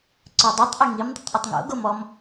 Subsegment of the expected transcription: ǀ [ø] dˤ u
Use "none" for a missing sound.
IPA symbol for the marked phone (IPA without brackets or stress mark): œ